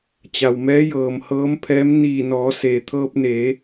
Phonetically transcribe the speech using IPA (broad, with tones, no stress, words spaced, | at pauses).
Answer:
t͡ɕa˩wmɛː˧˥jɤː˩m hɤː˧˥mpʰɛː˧˥m niː˧˩nɔː˩˧ seː˩ t̪ʰɤː˧p̚neː˩˧